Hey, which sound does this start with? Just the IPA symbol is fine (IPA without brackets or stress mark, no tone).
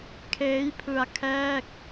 kʰ